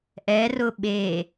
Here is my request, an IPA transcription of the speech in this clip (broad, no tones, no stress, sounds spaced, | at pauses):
ʔ ɛ r ʊ ɓ e